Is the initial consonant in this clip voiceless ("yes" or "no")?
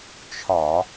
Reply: yes